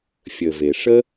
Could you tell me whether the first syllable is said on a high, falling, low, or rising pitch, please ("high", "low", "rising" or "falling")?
low